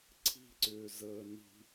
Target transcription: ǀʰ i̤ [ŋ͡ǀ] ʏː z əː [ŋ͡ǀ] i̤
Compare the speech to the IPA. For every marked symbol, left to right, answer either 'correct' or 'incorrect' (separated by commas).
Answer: incorrect, incorrect